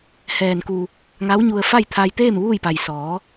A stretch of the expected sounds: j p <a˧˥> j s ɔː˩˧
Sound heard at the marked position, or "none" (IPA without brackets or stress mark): a˩